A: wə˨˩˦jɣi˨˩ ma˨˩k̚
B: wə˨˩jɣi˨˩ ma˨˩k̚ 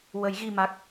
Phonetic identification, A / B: A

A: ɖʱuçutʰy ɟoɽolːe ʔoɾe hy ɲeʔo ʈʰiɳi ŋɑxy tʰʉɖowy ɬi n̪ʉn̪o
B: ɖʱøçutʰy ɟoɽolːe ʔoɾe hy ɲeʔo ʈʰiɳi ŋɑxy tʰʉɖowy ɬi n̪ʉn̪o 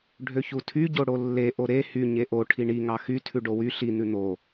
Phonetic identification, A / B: B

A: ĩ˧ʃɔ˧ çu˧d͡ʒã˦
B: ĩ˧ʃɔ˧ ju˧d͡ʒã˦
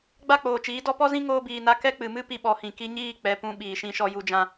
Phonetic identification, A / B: B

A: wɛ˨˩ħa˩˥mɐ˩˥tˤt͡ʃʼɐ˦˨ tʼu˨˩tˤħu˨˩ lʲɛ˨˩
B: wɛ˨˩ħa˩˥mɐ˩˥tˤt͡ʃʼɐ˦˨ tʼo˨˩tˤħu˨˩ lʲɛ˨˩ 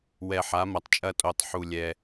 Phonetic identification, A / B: B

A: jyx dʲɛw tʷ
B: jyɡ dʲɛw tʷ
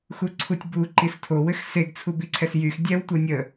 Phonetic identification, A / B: A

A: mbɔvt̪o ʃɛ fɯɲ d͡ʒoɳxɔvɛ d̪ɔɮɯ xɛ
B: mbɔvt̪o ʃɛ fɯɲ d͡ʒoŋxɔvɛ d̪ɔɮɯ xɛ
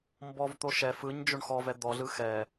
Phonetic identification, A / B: A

